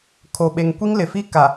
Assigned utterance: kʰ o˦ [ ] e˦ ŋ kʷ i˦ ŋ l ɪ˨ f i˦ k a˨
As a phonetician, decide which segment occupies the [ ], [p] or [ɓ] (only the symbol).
ɓ